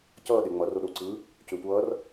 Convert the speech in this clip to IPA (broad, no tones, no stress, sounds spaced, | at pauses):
c ʌː ɗ e ŋ͡m ʌ r o ɗ o ǀ ɯː | c ʏː tʷ ʌː r